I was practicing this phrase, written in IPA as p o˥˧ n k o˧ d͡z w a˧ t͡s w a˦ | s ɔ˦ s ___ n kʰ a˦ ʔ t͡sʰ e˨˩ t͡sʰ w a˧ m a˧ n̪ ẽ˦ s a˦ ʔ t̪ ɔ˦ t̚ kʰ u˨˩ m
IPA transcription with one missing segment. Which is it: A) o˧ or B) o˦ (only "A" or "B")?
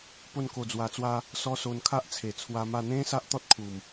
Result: A